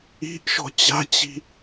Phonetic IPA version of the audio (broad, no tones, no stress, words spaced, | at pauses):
i̤ʔ ʃɔ̤t͡ɕa̤t͡ɕi̤